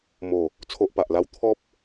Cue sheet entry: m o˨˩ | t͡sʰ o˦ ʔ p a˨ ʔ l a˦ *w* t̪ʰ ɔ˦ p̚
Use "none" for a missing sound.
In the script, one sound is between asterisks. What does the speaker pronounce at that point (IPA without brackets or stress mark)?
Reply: w